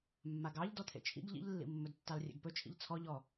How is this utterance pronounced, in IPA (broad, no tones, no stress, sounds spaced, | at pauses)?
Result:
mː a ɡ ɑ ʎ d ɔ t̪ʰ ḛ t͡ʃʰ ḭ ɡ ʎ ḭ ʎ lː ḭ mː ɵ d tː ɑ l rʲ ḛ ɡ p ɵ t͡ʃʰ ḭ ʎ t͡sʰ ɔ ʎ ɔ